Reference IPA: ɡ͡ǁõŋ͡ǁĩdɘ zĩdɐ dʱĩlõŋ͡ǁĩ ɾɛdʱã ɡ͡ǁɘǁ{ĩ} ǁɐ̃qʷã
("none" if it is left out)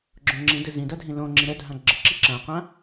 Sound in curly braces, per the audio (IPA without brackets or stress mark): i